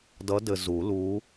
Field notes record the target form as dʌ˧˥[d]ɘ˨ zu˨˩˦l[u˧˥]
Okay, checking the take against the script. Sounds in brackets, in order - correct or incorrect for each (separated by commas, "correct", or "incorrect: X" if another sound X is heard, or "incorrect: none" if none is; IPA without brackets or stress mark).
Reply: correct, correct